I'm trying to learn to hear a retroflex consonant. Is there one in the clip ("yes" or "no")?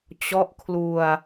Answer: no